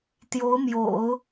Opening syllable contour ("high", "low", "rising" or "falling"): rising